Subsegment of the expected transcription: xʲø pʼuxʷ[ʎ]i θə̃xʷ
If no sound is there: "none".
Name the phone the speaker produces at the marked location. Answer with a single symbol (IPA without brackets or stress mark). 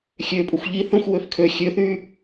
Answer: ʎ